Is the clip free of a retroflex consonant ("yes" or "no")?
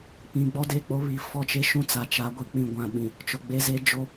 yes